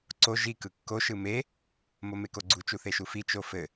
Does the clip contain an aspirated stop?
no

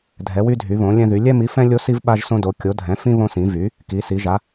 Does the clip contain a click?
no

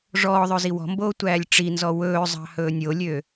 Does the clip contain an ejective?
no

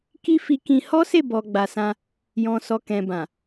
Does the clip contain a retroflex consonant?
no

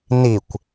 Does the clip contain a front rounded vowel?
no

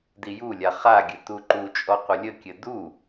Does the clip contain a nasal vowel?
no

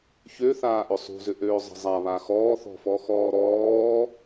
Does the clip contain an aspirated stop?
no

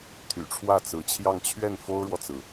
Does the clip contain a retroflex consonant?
yes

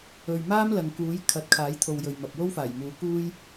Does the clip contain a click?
no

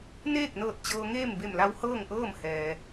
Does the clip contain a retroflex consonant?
no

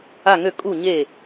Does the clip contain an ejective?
yes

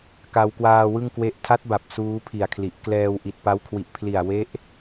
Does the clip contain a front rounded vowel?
no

